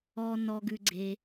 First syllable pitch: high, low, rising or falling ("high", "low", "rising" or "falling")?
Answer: low